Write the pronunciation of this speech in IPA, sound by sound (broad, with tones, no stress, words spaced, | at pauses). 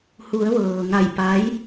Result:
hu˩˧ə̯ ʋɤː˩ ŋa˧˩jpa˧˥j